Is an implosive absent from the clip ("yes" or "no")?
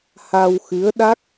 no